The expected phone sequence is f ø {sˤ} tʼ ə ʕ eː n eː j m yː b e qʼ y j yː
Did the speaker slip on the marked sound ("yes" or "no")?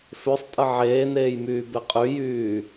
no